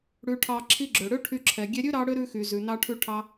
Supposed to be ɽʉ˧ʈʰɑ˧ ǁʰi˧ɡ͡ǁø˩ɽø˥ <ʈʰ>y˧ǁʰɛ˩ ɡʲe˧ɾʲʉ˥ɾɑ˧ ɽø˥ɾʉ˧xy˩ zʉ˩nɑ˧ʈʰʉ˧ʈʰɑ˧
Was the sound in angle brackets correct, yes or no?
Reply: yes